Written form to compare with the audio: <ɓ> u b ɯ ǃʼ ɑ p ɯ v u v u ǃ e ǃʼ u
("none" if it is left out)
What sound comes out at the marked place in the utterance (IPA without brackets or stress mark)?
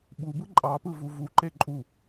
ɓ